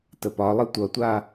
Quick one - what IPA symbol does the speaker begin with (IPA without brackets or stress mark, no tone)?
t